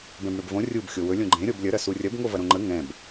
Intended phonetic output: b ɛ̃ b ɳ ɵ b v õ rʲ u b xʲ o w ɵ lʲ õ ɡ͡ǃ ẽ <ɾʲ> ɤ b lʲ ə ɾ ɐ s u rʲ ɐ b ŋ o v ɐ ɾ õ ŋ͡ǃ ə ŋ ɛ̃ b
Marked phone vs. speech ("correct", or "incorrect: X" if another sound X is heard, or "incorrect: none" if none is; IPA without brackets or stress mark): correct